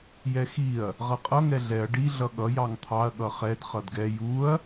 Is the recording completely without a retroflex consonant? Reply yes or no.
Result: no